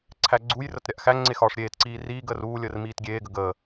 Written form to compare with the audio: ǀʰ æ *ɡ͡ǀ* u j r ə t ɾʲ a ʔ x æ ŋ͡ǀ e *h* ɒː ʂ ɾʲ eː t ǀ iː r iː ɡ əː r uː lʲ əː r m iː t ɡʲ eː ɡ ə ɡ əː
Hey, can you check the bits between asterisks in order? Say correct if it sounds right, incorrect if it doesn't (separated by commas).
correct, incorrect